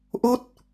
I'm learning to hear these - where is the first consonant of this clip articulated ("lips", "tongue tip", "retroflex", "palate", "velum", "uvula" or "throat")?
throat